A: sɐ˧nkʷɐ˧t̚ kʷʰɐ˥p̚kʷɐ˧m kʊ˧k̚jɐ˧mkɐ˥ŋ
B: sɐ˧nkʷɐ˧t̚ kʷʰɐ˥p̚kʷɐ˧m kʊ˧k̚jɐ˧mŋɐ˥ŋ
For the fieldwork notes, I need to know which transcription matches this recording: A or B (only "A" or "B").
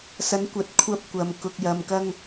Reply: A